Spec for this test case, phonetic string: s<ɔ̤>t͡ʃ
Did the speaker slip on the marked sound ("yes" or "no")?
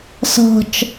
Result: no